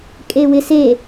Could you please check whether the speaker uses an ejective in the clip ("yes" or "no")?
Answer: yes